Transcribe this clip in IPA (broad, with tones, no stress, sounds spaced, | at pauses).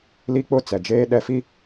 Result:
l i˦ k͡p ʊ˦˨ t͡s ɛ˨ d͡ʒ eː˦ ɗ ɛ˦ f i˦